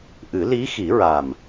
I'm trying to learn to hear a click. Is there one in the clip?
no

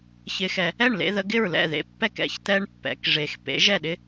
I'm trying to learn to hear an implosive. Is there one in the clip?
yes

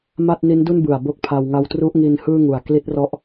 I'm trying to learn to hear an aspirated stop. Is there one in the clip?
yes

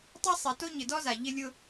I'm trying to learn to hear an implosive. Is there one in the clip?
no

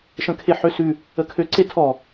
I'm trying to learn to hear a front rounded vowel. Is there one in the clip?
yes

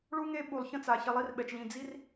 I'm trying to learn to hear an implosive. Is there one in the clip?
yes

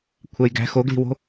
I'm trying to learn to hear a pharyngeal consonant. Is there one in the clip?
no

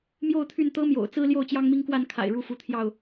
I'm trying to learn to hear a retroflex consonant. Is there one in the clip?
yes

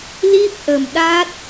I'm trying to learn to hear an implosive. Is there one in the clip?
yes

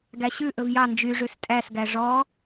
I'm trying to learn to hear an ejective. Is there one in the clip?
yes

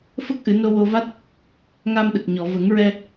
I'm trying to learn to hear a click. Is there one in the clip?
no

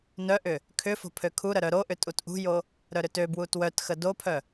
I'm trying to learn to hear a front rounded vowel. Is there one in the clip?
yes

